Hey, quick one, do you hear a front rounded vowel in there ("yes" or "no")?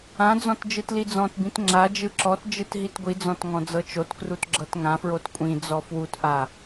no